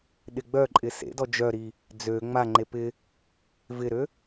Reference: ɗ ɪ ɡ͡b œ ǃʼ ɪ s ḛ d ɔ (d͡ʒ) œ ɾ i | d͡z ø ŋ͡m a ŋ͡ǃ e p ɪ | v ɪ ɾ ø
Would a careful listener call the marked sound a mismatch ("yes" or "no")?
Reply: no